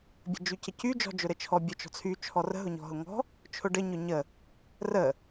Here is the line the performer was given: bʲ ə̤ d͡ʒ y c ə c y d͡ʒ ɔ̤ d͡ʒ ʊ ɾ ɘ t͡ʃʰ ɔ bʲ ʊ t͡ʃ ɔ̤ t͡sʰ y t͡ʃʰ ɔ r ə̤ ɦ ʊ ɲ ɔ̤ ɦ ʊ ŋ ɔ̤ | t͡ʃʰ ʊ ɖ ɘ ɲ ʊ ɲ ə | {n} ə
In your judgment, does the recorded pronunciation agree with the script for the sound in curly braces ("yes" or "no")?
no